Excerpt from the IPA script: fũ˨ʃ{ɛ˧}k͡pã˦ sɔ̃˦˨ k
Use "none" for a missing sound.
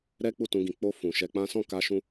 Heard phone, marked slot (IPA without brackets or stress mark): ɛ˧